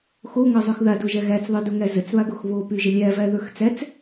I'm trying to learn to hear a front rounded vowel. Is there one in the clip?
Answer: yes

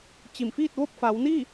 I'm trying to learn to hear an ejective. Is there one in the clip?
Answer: no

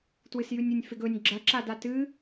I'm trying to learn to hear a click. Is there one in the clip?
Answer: yes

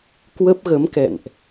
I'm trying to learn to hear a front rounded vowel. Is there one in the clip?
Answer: no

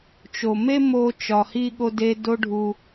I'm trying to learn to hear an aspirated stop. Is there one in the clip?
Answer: no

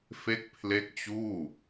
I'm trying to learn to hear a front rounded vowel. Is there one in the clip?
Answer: no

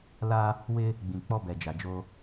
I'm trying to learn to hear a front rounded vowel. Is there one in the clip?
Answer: no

